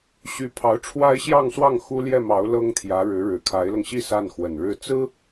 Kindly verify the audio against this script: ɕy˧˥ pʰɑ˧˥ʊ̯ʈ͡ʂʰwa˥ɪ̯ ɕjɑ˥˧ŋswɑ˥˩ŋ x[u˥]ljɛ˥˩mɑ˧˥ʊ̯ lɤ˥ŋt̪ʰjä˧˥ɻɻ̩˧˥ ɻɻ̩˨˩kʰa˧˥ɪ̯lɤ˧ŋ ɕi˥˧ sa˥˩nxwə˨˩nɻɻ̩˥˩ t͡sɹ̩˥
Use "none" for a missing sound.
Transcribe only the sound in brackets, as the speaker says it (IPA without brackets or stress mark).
u˥